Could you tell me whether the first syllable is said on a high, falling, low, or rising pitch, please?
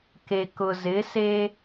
low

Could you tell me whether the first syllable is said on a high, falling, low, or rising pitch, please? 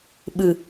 low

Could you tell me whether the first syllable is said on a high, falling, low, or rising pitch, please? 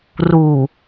low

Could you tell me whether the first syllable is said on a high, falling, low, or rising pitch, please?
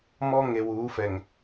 high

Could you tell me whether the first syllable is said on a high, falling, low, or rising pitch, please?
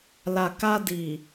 low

